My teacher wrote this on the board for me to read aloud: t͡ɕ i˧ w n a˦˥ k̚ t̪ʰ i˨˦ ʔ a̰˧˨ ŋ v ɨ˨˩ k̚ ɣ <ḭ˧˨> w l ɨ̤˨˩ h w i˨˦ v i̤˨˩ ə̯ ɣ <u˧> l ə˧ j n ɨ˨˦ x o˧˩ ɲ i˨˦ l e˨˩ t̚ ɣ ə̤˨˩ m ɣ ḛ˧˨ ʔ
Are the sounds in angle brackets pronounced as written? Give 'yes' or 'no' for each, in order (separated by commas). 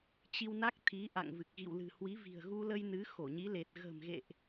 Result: yes, yes